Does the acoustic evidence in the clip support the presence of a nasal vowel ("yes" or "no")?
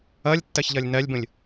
yes